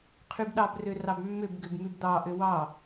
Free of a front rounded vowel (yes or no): no